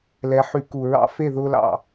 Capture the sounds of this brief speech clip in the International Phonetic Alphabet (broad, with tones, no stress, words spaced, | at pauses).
lɛ˨˦ħy˧˩˧ku˨˩ ɹɑ̰˦fe˥˨ðʊː˦ lɑ̰˨˩